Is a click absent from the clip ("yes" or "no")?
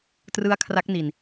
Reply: yes